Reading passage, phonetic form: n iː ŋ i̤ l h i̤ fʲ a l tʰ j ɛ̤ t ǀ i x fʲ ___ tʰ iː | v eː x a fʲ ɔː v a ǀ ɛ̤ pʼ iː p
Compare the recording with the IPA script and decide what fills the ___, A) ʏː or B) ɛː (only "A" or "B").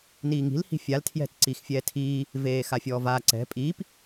B